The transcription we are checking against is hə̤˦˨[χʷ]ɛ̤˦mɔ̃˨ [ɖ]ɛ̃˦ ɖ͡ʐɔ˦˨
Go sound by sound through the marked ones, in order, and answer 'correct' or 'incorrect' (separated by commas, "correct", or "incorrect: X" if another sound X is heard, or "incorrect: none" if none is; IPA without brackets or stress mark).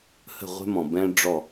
incorrect: ʁʷ, incorrect: b